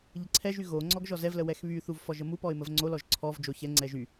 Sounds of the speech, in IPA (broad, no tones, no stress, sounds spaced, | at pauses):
ʎ ə ǀʰ ɛ ʒ y ɣ o ŋ͡ǀ ɔ ɡ ʒ ɔ z ɛ v l ə w ɛ x β y θ u v f ɔ ʒ ə m u p ɔ ɪ̯ m ə v ŋ͡ǀ o l ɔ ʒ ǀʰ ɔ v d͡ʒ o ç ɛ ŋ͡ǀ ɛ ʒ y